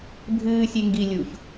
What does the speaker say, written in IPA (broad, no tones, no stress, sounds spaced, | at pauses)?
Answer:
bʱ ɨː sʲ e ŋ ɡ i lʲ u ç